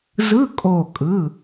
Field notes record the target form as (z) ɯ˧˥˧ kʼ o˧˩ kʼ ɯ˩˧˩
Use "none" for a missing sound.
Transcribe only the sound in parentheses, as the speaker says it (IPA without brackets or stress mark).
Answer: z